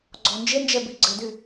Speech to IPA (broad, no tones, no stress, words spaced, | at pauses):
ɡ͡ǀɔnd͡ʒend͡ʒɛbi ɡ͡ǀɘdy